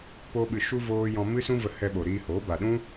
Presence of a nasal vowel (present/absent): present